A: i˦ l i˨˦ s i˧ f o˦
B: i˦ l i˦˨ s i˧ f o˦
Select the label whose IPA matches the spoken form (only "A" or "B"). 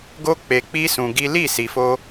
B